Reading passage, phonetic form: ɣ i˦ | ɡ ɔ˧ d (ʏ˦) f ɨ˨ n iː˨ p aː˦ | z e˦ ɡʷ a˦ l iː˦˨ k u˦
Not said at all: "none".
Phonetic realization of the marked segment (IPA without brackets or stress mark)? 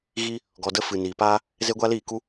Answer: ə˦